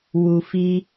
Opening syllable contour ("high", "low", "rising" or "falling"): low